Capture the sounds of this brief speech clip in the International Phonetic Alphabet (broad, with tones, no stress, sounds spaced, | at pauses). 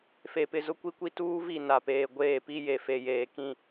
f e˨ p ɪ˨ z ʊ˦ kʷ i˦ kʷ i˦ t uː˦ v i˦˨ n a˨ p eː˨ ɡʷ eː˦˨ p i˦ j e˨ f e˨ j eː˨ k ĩ˦˨